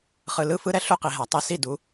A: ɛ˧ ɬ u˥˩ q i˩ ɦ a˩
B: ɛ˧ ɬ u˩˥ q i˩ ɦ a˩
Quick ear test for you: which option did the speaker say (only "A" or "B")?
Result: A